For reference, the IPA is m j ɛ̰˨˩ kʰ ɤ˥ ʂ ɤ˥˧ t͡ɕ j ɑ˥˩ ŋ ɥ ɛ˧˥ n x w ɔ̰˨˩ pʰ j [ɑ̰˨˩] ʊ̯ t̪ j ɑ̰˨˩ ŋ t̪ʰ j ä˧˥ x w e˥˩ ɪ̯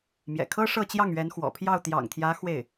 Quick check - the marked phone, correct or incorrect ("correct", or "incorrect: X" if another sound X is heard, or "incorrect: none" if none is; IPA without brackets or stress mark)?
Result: incorrect: ɑ˥˩